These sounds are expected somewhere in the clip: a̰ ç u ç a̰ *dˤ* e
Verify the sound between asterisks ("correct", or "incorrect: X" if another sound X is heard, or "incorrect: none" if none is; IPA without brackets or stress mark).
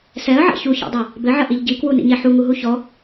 correct